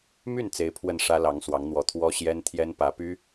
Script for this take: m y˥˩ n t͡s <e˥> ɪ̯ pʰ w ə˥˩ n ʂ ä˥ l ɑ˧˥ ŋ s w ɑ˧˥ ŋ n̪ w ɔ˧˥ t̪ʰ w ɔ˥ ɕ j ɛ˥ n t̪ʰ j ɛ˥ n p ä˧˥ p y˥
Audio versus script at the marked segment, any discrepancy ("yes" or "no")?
yes